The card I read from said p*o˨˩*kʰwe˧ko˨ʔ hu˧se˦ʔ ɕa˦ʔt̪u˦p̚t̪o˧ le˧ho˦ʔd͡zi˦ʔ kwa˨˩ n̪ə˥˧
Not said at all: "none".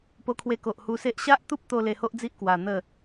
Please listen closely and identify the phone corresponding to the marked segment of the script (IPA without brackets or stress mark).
o˧